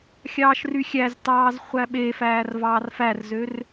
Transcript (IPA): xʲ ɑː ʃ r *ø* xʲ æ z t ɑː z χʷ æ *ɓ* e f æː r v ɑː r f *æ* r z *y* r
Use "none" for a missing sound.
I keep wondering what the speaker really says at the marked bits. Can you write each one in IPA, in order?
y, ɓ, æ, ø

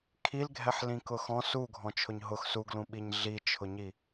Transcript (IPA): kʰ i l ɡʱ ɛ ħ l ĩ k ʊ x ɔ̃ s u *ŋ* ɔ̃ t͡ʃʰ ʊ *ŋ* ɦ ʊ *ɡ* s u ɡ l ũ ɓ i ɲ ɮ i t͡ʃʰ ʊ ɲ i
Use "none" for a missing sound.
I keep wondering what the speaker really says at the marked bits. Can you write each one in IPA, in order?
ɡʱ, ɲ, x

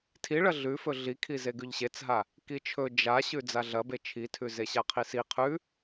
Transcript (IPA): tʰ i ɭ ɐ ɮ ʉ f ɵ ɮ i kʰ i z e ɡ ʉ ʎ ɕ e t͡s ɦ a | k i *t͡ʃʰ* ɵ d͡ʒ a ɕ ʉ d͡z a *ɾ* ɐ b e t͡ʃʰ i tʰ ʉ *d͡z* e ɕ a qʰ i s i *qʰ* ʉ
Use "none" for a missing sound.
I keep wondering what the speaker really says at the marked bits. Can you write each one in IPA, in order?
t͡ʃʰ, ɮ, z, qʰ

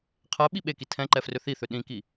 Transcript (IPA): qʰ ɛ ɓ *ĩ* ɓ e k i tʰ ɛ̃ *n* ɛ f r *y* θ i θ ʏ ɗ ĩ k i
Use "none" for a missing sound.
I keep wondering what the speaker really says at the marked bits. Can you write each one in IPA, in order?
i, ǃ, ʏ

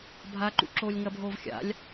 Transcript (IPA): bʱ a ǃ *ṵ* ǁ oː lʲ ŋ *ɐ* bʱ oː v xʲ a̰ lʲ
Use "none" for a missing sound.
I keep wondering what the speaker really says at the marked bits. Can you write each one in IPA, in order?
ṵ, ɐ

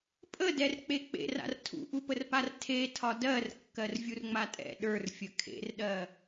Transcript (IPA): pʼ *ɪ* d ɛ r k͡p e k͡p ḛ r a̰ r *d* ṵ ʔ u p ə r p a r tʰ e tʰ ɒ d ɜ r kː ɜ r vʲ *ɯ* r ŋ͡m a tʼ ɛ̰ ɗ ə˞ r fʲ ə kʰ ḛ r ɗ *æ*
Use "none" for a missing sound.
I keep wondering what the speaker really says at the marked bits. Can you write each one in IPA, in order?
ə, tʰ, u, ɜ

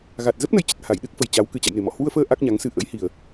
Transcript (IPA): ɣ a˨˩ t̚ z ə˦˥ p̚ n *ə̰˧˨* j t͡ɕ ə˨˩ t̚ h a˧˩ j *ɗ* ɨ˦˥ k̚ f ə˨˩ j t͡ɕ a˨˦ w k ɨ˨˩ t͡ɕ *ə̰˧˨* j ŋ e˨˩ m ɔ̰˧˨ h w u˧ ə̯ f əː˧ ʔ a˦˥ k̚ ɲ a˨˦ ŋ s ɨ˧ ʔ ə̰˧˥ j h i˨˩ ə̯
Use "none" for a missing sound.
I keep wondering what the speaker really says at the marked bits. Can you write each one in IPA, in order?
ə˨˦, ɗ, a̰˧˨

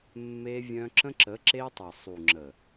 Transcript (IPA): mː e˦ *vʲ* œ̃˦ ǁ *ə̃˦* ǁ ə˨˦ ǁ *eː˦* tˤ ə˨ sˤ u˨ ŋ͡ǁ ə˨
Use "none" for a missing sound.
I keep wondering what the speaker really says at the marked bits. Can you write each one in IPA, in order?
vʲ, ə̃˦, e˦

